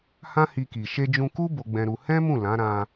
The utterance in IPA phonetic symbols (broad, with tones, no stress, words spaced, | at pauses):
hã˦hi˧ki˨ ʃe˧d͡ʒũ˧ku˦ bo˧ɡ͡bɛ̃˧ɾu˧ hɛ̃˦mũ˦˨ lã˨˦ɾã˧